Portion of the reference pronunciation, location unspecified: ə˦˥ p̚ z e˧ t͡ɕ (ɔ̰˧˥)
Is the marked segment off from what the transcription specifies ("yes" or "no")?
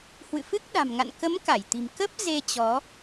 yes